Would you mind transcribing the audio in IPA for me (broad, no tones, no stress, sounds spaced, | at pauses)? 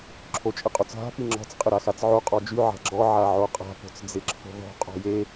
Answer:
ǁʰ o t͡ʃʼ ɪ qʼ o t͡s ɦ a̤ p i ŋ͡ǁ ɔ̤ t͡s qʼ ɪ ɾ a x a t͡s ʕ o qʼ ɔ d͡ʒ y ʕ a̤ ɡ͡ǁ ɔ ʕ a ʕ o qʼ a̤ p o̤ t͡s d͡z ɪ ǁʰ o̤ ð ɔ̤ qʼ ɔ̤ j e